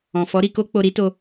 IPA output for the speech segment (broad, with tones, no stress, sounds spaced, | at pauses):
ɔ̃˨ f ɔ˨˦ ɾ i˧ k o˦ k͡p o˧ ɾ i˦ t o˧